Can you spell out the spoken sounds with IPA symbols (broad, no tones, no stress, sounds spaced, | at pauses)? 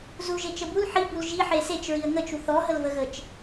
z u ʒ e t͡ʃ ə b u l ħ i b u l ʒ i ħ e s e t͡ʃ ɹ i ə̯ ŋ ə t͡ʃ u θ ɔ ɦ ə l v ə ɣ ə t͡ʃ